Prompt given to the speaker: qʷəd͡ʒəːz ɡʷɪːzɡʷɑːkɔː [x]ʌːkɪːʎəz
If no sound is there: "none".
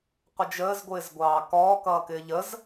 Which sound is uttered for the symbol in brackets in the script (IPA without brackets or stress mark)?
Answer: k